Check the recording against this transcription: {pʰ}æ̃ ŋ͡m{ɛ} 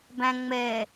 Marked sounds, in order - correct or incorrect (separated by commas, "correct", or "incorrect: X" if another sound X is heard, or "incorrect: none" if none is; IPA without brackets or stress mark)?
incorrect: b, correct